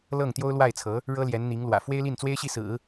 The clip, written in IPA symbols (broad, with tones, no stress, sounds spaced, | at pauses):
l ɤ˥˩ ŋ t̪ j o˥ ʊ̯ l w a˥˩ ɪ̯ t͡sʰ ɤ˧˥ | ɻ ɤ˥ l j ɛ˧˥ n n̪ i˧˥ ŋ l w ä̰˨˩ f w e˥ ɪ̯ l i˥˩ n t͡s w e˥ ɪ̯ ɕ i˥˩ s ɹ̩˨˩˦